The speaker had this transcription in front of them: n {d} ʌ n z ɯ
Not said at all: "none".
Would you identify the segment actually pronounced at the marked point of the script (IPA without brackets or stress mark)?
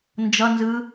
d͡ʒ